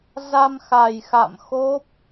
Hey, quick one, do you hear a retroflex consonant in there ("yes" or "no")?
no